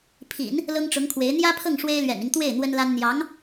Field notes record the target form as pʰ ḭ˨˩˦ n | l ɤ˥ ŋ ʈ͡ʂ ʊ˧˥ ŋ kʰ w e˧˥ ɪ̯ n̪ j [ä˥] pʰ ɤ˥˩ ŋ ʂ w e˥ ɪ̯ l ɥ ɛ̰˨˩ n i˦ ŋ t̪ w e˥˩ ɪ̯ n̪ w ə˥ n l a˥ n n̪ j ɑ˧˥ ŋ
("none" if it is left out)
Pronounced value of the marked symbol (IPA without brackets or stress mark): ä˥